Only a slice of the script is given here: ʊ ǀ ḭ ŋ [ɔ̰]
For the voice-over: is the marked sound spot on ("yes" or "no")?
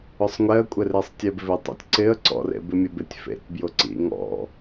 yes